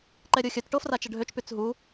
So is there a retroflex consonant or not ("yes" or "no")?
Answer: yes